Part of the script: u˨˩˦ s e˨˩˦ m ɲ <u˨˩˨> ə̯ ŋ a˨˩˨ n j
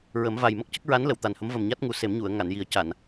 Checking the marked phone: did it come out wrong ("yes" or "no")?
no